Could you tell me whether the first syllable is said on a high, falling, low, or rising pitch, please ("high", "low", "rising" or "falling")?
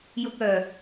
low